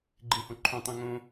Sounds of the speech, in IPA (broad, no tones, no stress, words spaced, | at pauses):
ɡ͡ǃĩhõǃʰõtˤ ĩŋõ